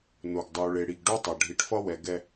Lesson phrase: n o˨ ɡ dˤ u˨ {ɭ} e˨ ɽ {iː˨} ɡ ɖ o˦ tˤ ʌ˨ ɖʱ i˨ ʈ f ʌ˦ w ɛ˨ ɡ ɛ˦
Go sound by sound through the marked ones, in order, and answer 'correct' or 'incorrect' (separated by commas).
correct, incorrect